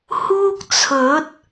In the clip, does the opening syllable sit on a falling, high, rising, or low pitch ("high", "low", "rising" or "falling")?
high